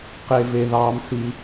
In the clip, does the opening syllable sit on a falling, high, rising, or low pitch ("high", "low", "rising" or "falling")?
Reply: low